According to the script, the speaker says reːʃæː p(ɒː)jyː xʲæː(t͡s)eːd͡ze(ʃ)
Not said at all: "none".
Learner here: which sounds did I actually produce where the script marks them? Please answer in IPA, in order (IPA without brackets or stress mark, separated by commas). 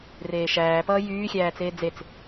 ʌː, t͡s, t͡s